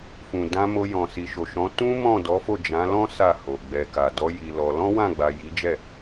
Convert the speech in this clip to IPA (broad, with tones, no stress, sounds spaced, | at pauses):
f ũ˨ d ã˧ m o˧ j ɔ̃˨ s i˨ ʃ o˨ ʃ ɔ̃˨˦ t ũ˦ m ɔ̃˦˨ d ɔ˨˦ f o˦˨ d͡ʒ ã˨˦ l ɔ̃˦ s a˦˨ h o˨ ɡ͡b ɛ˨ k a˨ d ɔ˨˦ j i˧ l ɔ˧ l ɔ̃˦ w ã˦˨ ɡ͡b a˨ j i˨˦ d͡ʒ ɛ˦˨